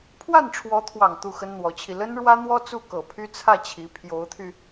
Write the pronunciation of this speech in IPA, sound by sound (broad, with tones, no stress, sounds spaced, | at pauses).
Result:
pʰ w a˥˩ n ʈ͡ʂʰ w ɔ˧˥ t̪ʰ w ɑ˨˩ ŋ t̪ u˥˩ x ə˥ n n̪ w ɔ˧˥ t͡ɕʰ i˧ l ə˥ n ɻ w ä˥ n̪ w ɔ˥ t͡s u˥˩ k ɤ˨˩ pʰ y˥ t͡sʰ ä˥˩ t͡ɕʰ i˧˥ pʰ j o˧˥ ʊ̯ t̪ʰ y˧